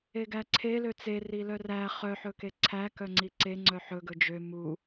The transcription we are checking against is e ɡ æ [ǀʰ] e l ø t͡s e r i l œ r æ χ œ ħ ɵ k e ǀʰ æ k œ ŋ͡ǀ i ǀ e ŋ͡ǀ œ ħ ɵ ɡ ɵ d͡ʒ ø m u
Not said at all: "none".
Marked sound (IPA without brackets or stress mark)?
ǀʰ